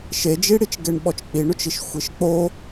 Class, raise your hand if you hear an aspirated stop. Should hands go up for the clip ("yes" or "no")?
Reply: no